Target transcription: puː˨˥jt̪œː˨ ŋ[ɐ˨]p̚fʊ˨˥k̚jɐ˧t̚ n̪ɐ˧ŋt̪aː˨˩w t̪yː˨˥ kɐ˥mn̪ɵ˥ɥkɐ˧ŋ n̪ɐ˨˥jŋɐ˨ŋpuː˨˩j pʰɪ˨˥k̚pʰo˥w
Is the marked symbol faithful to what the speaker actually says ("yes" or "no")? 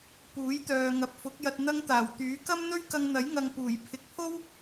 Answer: yes